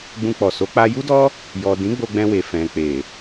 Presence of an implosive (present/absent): absent